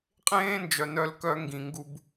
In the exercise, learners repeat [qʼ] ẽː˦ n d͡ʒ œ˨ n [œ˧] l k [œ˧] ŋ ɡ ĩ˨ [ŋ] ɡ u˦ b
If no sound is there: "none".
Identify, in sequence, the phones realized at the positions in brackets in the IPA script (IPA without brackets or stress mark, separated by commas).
qʼ, œ˧, œ˧, ŋ